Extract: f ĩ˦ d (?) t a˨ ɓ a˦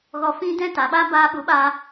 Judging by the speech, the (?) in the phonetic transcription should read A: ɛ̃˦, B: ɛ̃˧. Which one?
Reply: A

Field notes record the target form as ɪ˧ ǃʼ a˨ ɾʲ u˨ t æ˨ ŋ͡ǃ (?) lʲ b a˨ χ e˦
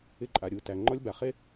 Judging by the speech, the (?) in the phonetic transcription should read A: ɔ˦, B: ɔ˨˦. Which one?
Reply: A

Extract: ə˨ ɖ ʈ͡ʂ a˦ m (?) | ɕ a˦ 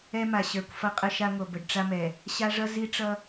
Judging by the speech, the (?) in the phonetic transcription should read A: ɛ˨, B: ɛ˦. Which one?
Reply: A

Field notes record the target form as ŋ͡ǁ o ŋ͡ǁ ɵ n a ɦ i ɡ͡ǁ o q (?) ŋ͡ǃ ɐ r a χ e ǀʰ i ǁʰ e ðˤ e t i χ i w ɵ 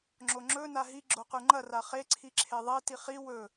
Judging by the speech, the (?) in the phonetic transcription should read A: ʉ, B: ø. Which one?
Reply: A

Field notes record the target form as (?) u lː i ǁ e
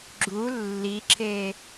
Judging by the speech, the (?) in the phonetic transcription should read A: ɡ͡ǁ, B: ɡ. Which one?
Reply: A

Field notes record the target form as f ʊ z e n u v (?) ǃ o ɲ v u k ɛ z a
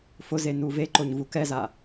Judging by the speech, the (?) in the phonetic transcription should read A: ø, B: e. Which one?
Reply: B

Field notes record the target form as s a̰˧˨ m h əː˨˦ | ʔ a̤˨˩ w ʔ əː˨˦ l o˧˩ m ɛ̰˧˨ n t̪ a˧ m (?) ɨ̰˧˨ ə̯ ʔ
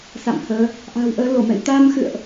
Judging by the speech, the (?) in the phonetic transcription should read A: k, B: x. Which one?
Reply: B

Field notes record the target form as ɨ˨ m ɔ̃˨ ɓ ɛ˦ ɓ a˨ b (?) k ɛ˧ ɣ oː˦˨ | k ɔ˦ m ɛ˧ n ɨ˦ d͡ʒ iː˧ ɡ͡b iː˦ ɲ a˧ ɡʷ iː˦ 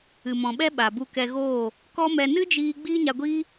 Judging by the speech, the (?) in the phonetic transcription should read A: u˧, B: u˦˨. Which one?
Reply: A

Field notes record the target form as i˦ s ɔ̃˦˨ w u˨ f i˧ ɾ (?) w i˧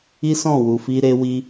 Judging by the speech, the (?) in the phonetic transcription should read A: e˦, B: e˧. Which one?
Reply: B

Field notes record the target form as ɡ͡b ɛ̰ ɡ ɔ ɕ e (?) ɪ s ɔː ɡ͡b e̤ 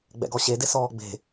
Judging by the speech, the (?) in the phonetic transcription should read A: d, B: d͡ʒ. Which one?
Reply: A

